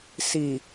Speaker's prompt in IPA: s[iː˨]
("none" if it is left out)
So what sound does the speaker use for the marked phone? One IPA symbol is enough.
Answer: i˨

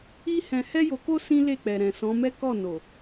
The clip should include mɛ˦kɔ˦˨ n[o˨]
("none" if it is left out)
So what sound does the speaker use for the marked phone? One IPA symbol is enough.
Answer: o˨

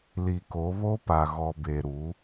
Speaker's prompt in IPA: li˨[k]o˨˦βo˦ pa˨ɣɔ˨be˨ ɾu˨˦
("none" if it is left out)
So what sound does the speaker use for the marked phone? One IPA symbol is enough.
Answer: k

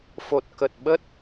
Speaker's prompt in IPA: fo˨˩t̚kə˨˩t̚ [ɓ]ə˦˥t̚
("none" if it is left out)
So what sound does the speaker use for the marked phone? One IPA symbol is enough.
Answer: ɓ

